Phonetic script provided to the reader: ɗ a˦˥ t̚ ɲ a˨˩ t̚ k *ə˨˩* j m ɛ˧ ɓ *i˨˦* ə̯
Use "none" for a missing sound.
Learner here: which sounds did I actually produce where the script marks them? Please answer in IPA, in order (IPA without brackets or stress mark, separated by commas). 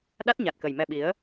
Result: ə˨˩, i˨˦